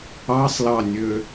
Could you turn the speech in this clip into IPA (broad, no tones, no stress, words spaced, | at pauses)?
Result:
ɑsˤlɑnʲø